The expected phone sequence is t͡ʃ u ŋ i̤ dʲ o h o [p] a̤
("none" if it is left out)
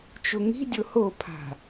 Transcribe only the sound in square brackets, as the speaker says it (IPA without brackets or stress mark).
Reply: pʰ